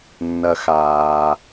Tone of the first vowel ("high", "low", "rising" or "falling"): low